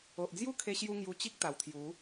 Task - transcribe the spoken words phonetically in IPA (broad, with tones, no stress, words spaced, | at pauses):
o˨ʔd͡zju˥˧kʰe˧ɕju˧ ŋju˧t͡ɕi˦k̚t̪a˨˩wt̪ʰju˨˦